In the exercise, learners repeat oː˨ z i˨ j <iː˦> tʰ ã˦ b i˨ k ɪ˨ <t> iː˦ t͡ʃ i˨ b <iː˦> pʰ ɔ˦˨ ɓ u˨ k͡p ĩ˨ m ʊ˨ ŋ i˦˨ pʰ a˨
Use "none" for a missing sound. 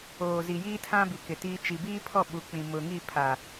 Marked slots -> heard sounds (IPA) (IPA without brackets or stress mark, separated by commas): iː˦, t, iː˦